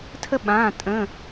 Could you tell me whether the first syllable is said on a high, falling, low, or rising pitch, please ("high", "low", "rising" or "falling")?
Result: high